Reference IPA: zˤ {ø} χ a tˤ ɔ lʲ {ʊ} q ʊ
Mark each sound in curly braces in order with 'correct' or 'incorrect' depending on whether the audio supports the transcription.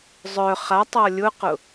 incorrect: œ, correct

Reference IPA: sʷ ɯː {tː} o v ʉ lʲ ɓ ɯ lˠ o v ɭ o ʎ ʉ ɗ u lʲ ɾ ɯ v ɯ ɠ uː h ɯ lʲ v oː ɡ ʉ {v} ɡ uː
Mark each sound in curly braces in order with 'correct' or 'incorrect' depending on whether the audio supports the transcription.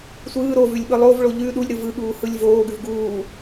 incorrect: ɾ, correct

